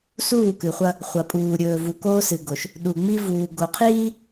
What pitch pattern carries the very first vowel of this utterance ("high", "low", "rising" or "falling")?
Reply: falling